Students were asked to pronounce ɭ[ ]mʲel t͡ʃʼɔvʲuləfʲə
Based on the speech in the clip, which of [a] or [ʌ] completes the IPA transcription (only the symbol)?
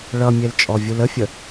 ʌ